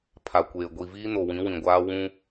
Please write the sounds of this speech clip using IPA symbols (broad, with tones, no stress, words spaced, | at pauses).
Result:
pʰa˨kʷeː˨ɡʷi˨ viː˦ no˨wĩ˨˦wĩ˨ɡʷaː˦ wũ˦